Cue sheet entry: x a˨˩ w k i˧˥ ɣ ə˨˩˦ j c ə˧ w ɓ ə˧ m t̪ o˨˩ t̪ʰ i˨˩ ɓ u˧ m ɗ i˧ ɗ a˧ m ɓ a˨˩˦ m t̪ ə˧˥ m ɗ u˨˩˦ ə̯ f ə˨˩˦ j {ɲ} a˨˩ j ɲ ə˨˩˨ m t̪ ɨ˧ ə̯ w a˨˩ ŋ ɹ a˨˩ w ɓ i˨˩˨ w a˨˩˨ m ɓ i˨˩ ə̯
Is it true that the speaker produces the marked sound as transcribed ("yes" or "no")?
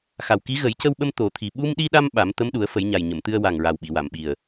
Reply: yes